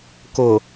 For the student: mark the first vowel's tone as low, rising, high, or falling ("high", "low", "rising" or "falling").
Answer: low